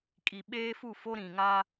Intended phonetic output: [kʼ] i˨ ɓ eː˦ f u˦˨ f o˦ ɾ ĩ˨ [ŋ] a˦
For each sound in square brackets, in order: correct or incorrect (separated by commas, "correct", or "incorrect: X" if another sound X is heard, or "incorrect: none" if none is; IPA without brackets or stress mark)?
correct, correct